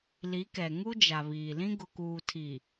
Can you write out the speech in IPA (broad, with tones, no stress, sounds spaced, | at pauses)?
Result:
l i˨˦ k ɛ˨ ŋ u˦ d͡ʒ a˨ β iː˨ l ĩ˦ ɡ ʊ˨ k uː˨ tʰ i˨